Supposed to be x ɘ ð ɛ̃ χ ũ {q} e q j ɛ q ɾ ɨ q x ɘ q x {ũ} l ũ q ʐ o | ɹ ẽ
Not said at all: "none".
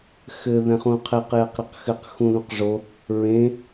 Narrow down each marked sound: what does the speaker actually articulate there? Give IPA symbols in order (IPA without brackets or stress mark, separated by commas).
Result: qʰ, ũ